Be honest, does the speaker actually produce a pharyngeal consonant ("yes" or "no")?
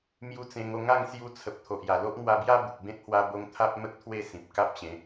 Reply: no